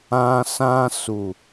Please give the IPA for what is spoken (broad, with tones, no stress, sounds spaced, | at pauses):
ã˧ s ã˧ s u˨